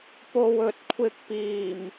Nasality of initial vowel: oral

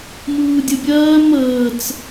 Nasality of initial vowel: oral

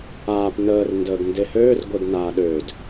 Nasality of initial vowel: oral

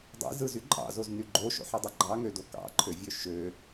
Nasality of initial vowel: oral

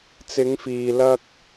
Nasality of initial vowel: oral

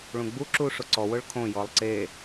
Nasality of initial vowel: nasal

